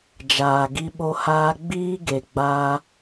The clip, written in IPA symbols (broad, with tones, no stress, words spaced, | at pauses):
d͡ʒaː˨ɡi˧ɓo˧haː˧ ɡ͡biː˦ ɡe˨ɡ͡baː˧